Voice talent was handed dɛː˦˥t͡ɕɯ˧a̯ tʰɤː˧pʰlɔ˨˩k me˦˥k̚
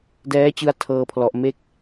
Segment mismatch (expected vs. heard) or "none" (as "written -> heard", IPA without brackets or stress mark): k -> ʔ